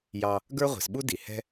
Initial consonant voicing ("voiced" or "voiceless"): voiced